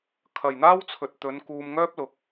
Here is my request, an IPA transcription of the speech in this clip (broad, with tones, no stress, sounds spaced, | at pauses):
kʰ ɐ˨ j n̪ aː˥ w t͡sʰ ɵ˨ t̚ t̪ ɵ˨˧ n k uː˧ m ŋ œː˥ p̚ l ʊ˨ k̚